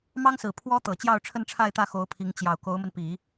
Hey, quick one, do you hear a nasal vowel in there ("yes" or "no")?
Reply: no